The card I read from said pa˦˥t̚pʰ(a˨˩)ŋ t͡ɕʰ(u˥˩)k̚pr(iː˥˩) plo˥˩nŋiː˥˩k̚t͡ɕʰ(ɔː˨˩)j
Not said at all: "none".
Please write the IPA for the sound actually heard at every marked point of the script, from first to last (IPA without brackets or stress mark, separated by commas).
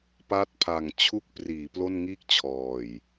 a˨˩, u˥˩, iː˩˦, ɔː˨˩